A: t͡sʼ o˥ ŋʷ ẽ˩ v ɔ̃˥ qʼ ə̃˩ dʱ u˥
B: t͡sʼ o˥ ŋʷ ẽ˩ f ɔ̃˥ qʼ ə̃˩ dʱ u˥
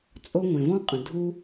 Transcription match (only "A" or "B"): A